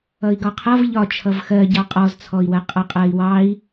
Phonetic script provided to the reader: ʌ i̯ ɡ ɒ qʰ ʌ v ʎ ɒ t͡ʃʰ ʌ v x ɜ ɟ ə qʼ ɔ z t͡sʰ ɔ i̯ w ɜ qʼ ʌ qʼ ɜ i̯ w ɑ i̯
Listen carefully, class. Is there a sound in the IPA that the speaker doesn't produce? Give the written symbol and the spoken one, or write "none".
ə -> ɑ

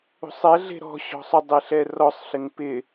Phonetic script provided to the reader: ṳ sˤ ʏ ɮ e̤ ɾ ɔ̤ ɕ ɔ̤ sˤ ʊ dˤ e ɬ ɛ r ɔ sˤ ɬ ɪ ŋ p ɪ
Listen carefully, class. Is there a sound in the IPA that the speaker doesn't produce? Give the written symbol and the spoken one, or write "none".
ʏ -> ɛ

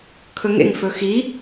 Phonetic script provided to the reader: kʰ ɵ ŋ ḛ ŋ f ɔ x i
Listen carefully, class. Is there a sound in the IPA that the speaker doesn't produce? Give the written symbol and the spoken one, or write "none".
ɔ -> ɵ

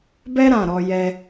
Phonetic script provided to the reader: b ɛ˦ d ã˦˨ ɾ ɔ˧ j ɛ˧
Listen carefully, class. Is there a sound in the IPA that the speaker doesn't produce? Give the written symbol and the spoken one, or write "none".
d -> ɾ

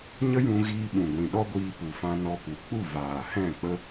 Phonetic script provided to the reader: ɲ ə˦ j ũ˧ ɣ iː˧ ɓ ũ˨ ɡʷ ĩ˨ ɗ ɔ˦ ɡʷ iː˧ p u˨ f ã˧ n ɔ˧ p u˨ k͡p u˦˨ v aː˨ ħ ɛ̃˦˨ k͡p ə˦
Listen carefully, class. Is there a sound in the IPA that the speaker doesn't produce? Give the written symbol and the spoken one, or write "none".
ħ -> h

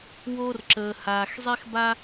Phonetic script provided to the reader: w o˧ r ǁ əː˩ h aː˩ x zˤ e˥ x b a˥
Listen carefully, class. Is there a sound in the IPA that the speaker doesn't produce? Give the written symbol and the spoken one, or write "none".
none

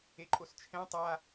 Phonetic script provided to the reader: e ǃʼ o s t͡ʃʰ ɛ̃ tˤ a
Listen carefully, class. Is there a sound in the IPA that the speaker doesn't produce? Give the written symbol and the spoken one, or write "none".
none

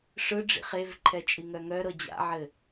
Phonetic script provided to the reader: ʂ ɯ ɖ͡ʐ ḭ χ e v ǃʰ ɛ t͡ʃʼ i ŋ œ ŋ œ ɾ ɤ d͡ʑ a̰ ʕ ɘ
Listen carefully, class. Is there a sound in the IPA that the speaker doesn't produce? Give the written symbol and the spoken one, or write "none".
none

